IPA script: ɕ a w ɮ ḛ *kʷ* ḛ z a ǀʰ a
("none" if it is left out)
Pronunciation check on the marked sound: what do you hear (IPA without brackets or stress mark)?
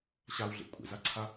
kʷʼ